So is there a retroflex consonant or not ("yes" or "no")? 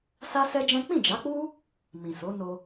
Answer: no